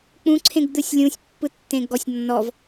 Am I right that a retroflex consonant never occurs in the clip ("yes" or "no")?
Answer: yes